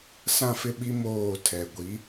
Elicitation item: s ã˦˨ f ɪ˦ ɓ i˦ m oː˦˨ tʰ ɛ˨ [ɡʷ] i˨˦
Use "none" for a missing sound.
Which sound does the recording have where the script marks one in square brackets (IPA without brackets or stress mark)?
ɡʷ